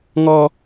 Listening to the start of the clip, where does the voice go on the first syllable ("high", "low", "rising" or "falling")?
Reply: high